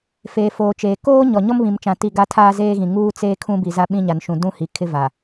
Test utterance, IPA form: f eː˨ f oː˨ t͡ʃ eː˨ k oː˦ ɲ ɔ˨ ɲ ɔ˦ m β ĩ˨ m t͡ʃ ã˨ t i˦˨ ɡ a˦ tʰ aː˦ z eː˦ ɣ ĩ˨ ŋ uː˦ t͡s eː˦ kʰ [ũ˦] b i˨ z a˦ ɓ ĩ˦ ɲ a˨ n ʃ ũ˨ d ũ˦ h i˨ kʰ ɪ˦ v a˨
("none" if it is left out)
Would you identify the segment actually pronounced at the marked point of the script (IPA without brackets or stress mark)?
ũ˦